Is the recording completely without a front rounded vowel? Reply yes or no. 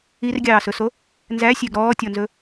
no